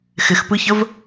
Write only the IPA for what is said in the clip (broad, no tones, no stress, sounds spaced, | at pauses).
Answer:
x ɪ x p ɯ ç ə v